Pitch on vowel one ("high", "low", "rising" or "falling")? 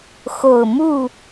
low